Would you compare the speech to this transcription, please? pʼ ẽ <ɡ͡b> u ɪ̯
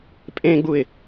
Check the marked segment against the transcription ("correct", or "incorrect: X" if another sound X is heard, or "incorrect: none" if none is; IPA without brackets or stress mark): correct